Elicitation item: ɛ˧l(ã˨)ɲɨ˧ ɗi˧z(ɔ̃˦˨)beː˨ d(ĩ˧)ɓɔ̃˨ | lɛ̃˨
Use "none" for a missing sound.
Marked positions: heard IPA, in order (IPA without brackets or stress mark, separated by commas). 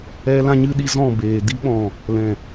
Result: ã˧, ɔ̃˦˨, i˧